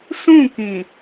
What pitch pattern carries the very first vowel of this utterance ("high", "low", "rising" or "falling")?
falling